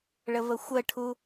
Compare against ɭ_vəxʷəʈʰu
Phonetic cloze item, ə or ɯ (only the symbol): ə